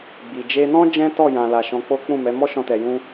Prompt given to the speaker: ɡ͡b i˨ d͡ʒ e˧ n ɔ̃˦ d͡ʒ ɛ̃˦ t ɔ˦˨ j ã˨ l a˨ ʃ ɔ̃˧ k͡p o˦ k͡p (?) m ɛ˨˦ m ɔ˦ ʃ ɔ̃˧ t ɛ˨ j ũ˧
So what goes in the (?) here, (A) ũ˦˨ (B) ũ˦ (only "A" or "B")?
A